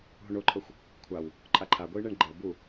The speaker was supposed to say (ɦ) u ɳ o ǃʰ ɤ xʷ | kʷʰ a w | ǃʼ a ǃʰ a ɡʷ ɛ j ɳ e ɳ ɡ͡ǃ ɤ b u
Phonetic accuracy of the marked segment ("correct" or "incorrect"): correct